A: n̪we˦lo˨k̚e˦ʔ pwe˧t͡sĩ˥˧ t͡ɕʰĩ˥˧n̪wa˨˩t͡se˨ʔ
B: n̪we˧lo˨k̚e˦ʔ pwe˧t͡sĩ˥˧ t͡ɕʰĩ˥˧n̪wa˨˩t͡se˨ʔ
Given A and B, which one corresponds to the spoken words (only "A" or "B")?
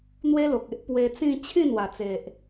A